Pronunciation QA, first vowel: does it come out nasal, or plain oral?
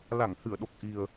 oral